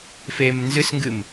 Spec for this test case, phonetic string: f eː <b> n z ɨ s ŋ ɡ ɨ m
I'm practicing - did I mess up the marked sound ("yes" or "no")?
yes